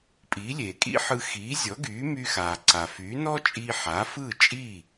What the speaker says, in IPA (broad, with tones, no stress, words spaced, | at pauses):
pʼiː˩˥lʲeː˩kʼḭ˥ħɯ˧ xiː˩˥zʲɔ˩˥ɡyː˩˥ my˧xaː˩ǀa˩ fy˩˥ nɔ˥t͡ʃʼiː˧ ħa˩˥fɯː˥˩t͡ʃʼiː˥˩